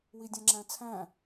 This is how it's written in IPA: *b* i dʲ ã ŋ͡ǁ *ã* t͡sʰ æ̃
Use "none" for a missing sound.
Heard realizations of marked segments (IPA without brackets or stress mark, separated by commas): w, æ̃